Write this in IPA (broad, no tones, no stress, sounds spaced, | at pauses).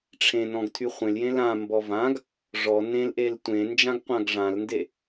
ʈ͡ʂʰ ẽ n ɔ̃ ɡ tʰ y χʷ ẽ l j ẽ l ã m b ɔ v ã ɡ | ʐ ɔ n ẽ l ʔ e l tʷ ẽ n d͡ʒ ã ɡ qʷ ã ɡ ʐ ã l n d e